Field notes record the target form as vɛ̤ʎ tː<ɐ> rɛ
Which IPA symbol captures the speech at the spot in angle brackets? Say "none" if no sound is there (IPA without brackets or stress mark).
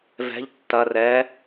ɐ